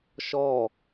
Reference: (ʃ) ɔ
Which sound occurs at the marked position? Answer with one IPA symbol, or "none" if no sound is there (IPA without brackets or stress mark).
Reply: ʃ